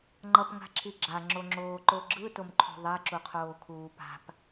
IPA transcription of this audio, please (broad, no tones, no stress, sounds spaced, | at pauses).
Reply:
ŋ͡ǃ ʌ p ŋ a̤ ǁʰ i ɡ͡ǁ a ŋ͡ǁ o ŋ͡ǁ oː ǃ o ɡ͡ǁ ɯ t o m ǃʰ ṳ ðˤ ɛ ǁ u qʰ oː kʰ uː p a̤ p